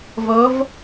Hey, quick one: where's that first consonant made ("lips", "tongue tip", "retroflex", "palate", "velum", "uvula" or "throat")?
lips